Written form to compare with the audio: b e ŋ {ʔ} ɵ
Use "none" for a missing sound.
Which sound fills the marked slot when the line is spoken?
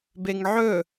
ʕ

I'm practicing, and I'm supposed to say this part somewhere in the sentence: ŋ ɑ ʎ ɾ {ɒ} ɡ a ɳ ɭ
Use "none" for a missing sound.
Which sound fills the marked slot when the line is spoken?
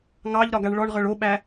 ɒ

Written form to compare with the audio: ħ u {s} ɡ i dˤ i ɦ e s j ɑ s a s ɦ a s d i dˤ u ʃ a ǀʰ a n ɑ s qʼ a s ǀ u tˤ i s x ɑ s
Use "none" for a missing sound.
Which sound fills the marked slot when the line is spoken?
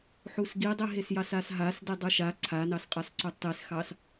s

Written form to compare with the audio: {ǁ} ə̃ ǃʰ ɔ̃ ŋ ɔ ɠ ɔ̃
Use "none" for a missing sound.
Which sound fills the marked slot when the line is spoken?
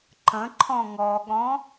ǃ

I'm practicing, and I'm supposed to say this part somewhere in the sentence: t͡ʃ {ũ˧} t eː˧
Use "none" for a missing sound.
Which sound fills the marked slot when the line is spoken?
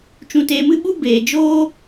ũ˧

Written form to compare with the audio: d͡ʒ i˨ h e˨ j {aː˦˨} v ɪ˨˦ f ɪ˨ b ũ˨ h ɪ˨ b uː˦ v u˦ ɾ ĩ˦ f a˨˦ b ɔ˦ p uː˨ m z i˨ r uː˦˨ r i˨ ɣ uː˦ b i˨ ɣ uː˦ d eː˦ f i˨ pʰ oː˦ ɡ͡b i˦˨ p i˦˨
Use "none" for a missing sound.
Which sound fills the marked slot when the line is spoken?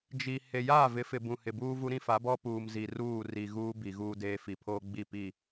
aː˦˨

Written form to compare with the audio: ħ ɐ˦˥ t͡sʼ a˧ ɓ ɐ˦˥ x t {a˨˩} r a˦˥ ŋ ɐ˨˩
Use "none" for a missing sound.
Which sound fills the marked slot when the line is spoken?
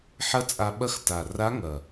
a˨˩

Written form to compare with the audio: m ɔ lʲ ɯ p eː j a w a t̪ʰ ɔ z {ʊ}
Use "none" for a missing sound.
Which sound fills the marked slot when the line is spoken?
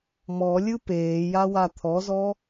ɔ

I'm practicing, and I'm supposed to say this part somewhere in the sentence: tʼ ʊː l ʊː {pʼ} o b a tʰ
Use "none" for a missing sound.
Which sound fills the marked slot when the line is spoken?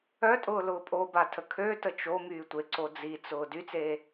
pʼ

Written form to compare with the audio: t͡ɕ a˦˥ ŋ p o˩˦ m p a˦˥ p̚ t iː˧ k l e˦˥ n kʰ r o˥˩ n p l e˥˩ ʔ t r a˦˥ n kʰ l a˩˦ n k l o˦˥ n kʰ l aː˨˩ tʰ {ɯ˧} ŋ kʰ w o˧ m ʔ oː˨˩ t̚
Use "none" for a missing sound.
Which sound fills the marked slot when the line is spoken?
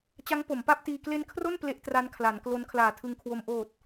ɯ˧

